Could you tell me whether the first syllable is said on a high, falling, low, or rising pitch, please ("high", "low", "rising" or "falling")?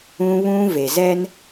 high